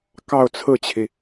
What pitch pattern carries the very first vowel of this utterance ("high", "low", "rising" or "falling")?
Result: falling